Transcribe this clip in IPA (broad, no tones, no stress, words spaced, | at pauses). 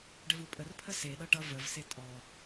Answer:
ɖəvupʼərpʰə seɗʌ ʈʌ vəvse tʼɔ